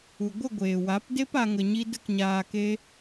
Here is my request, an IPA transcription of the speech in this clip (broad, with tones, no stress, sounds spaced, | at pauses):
u˨ ɡʷ ə˦˨ ɡʷ eː˨ w a˨˦ p d e˦ p a˧ ŋ ə˧ ɲ i˦ d ə˦ k ɲ aː˧ k e˦